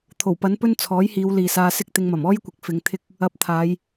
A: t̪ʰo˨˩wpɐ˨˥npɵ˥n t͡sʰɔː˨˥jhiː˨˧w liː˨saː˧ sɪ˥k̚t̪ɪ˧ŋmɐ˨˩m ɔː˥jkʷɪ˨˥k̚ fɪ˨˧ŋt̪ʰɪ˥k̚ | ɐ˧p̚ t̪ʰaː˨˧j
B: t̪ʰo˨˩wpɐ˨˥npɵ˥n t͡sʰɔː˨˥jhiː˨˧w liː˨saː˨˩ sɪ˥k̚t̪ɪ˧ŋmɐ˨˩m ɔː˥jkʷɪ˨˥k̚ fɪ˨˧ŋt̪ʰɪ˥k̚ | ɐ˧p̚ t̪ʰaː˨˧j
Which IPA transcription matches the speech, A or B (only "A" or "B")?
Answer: A